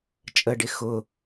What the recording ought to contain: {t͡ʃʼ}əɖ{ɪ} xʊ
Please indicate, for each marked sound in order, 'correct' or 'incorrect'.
correct, correct

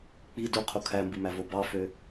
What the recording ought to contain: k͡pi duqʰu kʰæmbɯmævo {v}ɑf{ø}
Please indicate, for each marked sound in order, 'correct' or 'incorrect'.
incorrect: b, correct

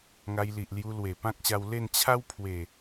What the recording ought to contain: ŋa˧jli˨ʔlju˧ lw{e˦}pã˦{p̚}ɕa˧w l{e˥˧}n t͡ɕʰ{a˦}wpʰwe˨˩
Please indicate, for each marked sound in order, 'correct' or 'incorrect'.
incorrect: e˨˩, incorrect: k̚, correct, correct

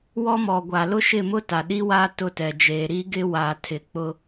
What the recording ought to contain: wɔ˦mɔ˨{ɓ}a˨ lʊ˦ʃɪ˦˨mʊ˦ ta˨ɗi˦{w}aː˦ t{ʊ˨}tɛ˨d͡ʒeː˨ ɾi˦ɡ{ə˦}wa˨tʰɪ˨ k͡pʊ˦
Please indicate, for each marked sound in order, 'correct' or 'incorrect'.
incorrect: ɡʷ, correct, incorrect: ʊ˦˨, incorrect: ɪ˦

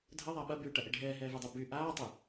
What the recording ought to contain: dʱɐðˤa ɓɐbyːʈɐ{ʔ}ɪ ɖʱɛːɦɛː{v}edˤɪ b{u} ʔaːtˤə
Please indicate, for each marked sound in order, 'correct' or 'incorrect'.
correct, correct, incorrect: y

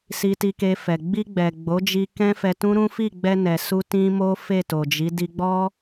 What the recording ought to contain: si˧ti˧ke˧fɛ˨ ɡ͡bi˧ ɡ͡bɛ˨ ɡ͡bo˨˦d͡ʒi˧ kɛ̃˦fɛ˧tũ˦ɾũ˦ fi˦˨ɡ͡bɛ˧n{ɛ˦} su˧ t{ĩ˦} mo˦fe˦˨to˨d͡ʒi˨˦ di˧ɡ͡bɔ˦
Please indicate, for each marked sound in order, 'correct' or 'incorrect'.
incorrect: ɛ˨, correct

